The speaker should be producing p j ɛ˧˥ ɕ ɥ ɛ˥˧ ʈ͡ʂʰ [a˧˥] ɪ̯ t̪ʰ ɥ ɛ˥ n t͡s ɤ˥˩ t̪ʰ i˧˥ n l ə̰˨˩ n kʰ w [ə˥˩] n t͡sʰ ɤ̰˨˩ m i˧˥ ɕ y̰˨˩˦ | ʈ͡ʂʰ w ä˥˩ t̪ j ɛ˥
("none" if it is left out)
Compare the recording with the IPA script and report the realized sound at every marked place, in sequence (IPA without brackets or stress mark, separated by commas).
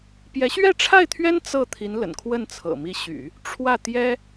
a˥˩, ə˥˩